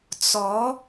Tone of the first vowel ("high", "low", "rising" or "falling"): rising